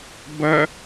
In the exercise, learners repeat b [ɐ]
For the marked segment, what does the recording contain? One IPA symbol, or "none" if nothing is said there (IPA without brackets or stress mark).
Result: ɐ